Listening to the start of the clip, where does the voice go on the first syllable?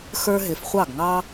high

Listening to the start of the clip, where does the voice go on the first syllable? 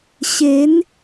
rising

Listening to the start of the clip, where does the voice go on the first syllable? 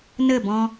falling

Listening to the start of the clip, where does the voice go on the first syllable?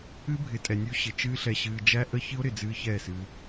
high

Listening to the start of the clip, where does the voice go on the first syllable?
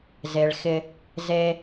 low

